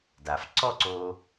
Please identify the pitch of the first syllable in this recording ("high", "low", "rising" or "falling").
low